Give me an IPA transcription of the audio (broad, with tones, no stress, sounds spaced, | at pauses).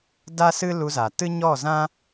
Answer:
d a˦ s ɨ˦ l u˧ z a˨ t ɨ˦ ɲ ɔ˦˨ z ã˦